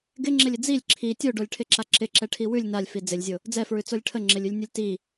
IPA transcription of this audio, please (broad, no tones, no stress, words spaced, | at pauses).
ɡɪŋ͡ǁɪlʲɪ d͡zilʲ ǁʰi tʲoɖolʲʈʰɪǁa ǁɪǁɛʈʰi wʉlʲ nalʲfi d͡zɪlʲzʲo | d͡zɛfɹʉt͡solʲ ʈʰəŋ͡ǁɪlʲʉlʲnʲolʲ ti